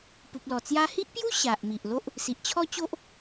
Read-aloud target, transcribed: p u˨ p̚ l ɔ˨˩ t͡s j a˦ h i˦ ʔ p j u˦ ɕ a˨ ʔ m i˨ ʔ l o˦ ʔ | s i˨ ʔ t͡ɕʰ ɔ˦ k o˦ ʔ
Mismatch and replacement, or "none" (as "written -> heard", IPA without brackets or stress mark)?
k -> t͡ɕ